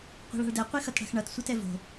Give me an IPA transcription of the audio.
qʷɛ̤ɭa̤ɭdɛ qʷixʌtɽa̤xɳʌt sʷetɛvo̤

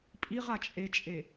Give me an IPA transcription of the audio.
pʼiʁ at͡ʃʼet͡ʃʼe

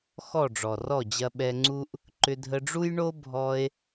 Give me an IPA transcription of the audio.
xɔ˦˨ɖ͡ʐɔ˨rɔ˦˨d͡ʑɐ˧ ɓɛ˧ŋ͡ǀu˦ʔ | ǃʏ˧dʱə˧ɖ͡ʐu˦jɳo˦ bʱɔ˧e̯

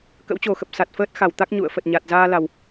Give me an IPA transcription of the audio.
kə̰˧˥wt͡ɕo˨˩xə˨˩p̚ sa˨˩t̚fəː˦˥t̚xa˧˩w t̪a˦˥k̚ɲṵ˧˨ə̯ fə˨˩t̚ɲa˨˩t̚ zaː˧la˨˩w

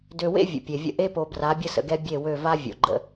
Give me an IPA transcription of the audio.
dø˨wḛ˦ vʲə̰˨pʲe˨vʲə̰˦ ʔe˦po˨ bra˨˦bʲə˦sə̰˨ɡɛ˦ bʲe˦˨wø˦˨ va˦ vʲo̰˨ɡ͡ǃə̰˦

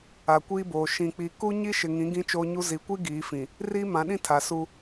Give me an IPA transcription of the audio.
a˨kʷiː˦boː˨ ʃĩ˨k͡pi˨ku˦ ɲi˦ʃɪ˨ŋĩ˨˦ ɡĩ˦t͡ʃoː˦ɲu˦ zi˨kʷi˦ ɡiː˨˦ fĩ˨ | riː˦mã˨˦ɗĩ˦ tʰa˨su˦

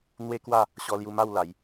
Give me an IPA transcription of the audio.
n̪we˦kwa˥˧ | ɕɔ˧lju˧ma˥˧w la˨˦j

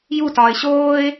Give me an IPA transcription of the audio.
jutɒːɪ̯ ɕoːɪ̯

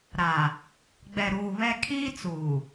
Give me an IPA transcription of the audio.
ɾa˨ | ɡ͡bɛ˨ɾuː˨βɛ˦ kʰiː˦t͡suː˨

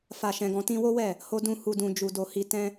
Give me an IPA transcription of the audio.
fa˨ʃɛ̃˨ɡɔ̃˨ tĩ˧wo˦wɛ˦˨ | ho˧dũ˧ hu˨dũ˨ d͡ʒu˨do˨ hi˨ tɛ̃˧

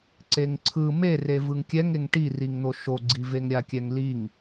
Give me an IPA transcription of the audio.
ǀeŋǀʰɯ mere vɯŋkʲɛŋeŋ ʈiriŋn̪o ʃoɡ͡ǀi veŋɾʲakʲɛŋliŋ

